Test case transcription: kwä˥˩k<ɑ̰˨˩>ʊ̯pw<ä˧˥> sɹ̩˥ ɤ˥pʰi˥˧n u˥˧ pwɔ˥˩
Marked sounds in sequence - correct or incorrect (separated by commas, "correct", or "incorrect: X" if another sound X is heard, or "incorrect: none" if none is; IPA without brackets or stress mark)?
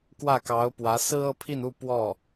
incorrect: ɑ˧˥, correct